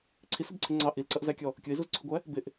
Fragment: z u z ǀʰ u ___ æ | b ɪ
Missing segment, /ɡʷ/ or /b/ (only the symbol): ɡʷ